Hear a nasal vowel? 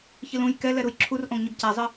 yes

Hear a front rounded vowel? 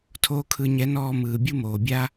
no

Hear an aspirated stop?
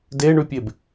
no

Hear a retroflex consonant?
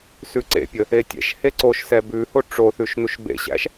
yes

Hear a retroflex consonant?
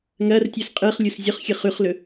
no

